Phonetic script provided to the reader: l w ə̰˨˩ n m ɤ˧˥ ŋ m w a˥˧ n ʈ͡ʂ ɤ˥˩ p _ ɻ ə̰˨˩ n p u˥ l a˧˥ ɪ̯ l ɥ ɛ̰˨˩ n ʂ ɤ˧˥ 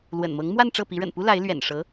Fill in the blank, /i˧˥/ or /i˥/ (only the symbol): i˧˥